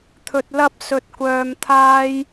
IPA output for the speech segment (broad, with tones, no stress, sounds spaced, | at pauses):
t̪ʰ ɵ˧ t̚ l ɐ˥ p̚ s ɵ˧ t̚ kʷ œː˧ m t̪ʰ aː˥ j